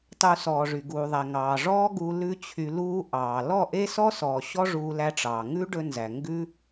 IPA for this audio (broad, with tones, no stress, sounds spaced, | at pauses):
tˤ u˧ s ɔː˨ ʐ y˨ ɡ uː˨ ðˤ æ˨ ŋ ɑː˨ ʐ ɔː˦ ɡ uː˧ l ʉ˦ t͡ɕʰ y˧ l uː˧ ʔ ɑː˨ l ɔ˦˨ ʔ e˦ s ɔ˦ s ɔː˨ ɕ ɔ˦ ʐ uː˧ l æ˧ ʈ͡ʂ ɑː˨ ŋ ʉ˦ ɖ ɵ˧ n z æ˨ ŋ ɡ ʉ˦